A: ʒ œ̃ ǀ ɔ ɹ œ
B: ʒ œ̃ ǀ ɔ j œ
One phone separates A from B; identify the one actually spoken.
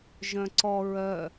A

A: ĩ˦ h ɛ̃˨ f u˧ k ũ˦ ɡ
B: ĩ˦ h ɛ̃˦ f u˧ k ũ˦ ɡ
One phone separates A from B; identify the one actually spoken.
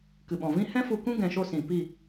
B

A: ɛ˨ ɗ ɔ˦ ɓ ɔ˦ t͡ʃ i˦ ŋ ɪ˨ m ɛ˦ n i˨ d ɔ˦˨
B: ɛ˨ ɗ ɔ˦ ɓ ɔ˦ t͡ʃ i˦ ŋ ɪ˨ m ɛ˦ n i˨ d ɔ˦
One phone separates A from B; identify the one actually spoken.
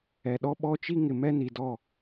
A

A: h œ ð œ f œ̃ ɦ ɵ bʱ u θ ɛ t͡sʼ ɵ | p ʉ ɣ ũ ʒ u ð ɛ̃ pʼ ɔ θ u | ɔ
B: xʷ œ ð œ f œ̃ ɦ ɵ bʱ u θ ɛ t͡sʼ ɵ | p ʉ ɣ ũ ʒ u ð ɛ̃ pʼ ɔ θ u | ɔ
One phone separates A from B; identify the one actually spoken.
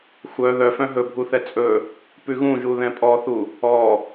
B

